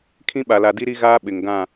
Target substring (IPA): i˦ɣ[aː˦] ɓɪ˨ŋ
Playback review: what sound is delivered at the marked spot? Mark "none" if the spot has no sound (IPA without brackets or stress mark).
aː˦